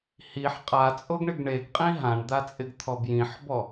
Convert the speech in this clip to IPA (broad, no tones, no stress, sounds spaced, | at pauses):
h i ħ qʼ a t͡sʼ o ɡ ɳ ɪ ɡ ɳ e ɡ qʼ ĩ ɦ ã ɳ d̪ a t͡sʼ ɪ ɡ t̪ʰ ɔ b j ĩ ħ b ɔ